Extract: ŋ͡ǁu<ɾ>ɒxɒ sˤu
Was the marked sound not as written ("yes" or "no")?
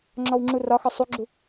yes